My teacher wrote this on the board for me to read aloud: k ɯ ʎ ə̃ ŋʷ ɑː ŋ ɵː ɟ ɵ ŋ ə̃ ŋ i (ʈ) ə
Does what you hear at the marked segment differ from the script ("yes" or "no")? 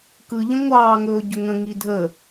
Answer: yes